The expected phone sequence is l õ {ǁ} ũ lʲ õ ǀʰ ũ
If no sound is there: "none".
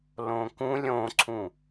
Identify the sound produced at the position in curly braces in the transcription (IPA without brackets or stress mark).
k